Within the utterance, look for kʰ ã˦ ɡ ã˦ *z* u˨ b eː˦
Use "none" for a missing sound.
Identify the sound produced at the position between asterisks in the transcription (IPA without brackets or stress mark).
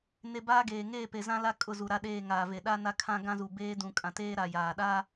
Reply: z